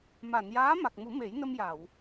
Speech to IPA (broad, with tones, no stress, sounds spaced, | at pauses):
m a˨˩˨ n j aː˧˥ m a˨˩ k̚ m u˨˩˦ m e˨˩˦ j n ə˧ m j a˨˩˨ w